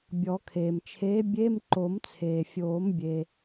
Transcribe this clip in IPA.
bʲɔ˨˩˦kʰeː˩mt͡ʃʰeː˨˥ bʲe˧˥˧mǃo˨˩˦mt͡sʰeː˩fʲoː˨˩˦m bʲe˩

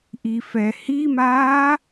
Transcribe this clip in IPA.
ʔifɛhimaː

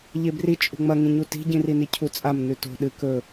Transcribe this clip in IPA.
ʎebri t͡ʃʼṳŋ͡mɐŋĩɲu ti̤ɟĩrini cʰut͡sʼam nʉto̤ ɗɨ kɵ

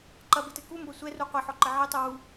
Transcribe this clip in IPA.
ǃɐbetɘ kumbɐ sʷɛru qʷeħɔǃɘ ʕetˤu wu

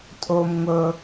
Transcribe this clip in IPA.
tʼom ŋʷɤ

